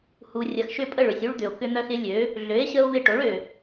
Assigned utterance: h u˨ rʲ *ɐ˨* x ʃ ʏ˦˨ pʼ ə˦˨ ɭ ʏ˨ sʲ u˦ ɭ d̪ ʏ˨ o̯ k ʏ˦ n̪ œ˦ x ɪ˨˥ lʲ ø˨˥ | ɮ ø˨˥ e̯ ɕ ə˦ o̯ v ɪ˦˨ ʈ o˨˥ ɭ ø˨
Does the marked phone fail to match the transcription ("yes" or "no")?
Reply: no